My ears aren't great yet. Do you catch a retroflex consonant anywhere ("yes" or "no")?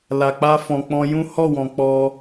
no